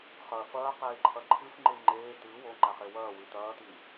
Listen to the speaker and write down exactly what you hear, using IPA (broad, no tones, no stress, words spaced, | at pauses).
χɐ fɐːqeːǃʰɐ ǃʰɨfŋ͡ǃɨ ŋ͡ǃeː t̪ɨ woŋ͡ǃaχe wɐːwɨ t̪ɐːt̪i